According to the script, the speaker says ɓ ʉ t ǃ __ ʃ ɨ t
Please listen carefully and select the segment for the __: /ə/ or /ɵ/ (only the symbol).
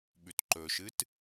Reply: ɵ